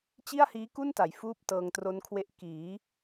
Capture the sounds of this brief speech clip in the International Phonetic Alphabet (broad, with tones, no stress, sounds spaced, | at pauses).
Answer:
t͡ɕ i˥˩ a̯ h iː˦˥ k u˥˩ n t a˩˦ j f uː˥˩ p̚ t ɤː˧ ŋ t r o˦˥ n kʰ w e˦˥ ʔ k iː˩˦